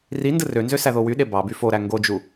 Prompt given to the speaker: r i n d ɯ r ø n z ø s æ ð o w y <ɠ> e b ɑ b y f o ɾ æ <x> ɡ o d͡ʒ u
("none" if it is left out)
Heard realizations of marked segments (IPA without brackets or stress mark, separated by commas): ɗ, ŋ